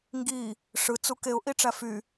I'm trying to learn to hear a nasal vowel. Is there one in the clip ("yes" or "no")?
no